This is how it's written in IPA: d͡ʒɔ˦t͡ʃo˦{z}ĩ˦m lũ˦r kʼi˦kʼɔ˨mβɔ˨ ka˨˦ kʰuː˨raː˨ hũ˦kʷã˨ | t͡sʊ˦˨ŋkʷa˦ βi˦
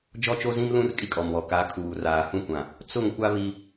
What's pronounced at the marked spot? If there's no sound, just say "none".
z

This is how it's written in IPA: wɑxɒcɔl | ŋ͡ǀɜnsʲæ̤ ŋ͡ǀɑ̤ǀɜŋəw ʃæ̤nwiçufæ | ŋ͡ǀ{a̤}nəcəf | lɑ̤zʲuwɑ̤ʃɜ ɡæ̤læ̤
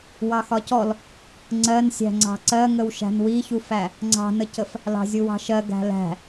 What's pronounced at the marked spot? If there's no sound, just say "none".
ɑ̤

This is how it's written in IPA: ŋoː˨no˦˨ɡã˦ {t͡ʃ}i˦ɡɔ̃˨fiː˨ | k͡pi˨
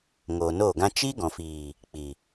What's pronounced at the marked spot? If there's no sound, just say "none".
t͡ʃ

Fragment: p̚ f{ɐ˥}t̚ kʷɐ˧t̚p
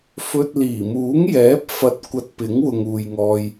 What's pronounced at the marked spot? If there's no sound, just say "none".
ɐ˧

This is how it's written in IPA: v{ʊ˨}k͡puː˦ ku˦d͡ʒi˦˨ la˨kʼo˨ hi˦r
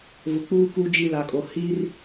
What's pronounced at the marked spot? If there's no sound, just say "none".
ʊ˨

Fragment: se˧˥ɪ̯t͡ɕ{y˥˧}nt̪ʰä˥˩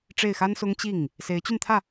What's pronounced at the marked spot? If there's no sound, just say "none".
y˥˧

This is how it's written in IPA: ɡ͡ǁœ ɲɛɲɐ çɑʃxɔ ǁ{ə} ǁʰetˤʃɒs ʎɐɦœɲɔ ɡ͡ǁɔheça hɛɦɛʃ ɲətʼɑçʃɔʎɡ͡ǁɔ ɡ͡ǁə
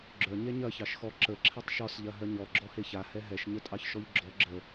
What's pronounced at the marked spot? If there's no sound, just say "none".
ə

